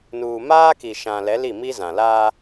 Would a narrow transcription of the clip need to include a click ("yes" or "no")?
no